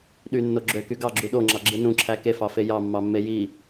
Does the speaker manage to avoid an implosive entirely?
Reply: no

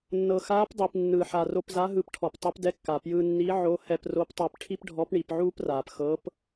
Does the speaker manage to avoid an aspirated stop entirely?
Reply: no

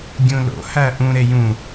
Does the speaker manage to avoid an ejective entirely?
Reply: yes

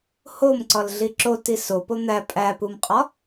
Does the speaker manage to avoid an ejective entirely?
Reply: no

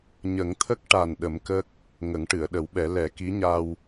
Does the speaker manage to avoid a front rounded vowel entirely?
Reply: yes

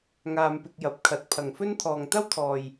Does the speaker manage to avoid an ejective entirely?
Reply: yes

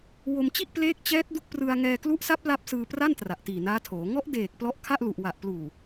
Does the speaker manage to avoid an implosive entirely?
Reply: yes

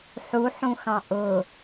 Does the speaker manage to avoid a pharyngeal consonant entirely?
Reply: no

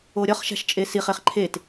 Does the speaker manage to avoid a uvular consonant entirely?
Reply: no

